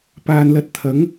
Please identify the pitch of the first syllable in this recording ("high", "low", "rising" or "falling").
low